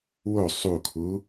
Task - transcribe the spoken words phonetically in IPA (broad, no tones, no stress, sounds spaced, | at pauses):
w o sˤ u kʰ u